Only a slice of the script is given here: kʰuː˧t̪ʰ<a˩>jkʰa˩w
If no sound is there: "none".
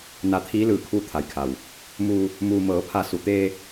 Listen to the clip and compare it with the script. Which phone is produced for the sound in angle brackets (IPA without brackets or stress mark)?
a˩